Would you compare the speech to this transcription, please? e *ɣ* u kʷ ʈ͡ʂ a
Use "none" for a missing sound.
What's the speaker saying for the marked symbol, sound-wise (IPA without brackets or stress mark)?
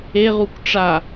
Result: ʁ